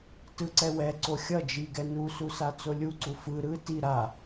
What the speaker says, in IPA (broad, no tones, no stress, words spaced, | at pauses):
tɯǀɛwɛ ǀoxʲʌ d͡ʒiɡɛ nususa t͡solʲuǀu fɯ ɾɯ ti ɾa